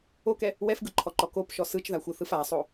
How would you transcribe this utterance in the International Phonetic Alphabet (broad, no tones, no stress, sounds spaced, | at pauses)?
o k ɛ | w ɛ f ɡ ɯ ǃʰ ɔ ǃ ɔ k o p ʃ ɔ s ɯ t͡ʃ ð a xʷ ɯ θ ɯ f a sˤ o